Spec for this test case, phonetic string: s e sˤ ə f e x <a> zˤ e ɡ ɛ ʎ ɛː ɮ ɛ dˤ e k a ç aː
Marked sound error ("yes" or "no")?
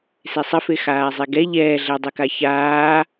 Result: yes